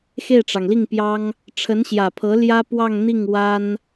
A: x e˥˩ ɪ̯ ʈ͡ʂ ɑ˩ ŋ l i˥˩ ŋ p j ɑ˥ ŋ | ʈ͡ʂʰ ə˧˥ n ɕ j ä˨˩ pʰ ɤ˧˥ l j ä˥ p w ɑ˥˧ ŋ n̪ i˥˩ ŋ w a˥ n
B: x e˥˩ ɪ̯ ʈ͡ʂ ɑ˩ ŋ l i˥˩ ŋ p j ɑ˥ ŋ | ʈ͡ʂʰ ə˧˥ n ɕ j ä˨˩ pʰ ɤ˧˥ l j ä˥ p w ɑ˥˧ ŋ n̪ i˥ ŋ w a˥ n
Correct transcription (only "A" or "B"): A